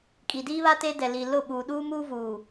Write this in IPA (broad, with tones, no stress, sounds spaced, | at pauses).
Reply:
kʼ i˨ d iː˦ β a˦ t e˦ d ɛ˨ l i˨ l ʊ˦˨ ɓ uː˨ ɗ uː˦ m uː˦ v uː˨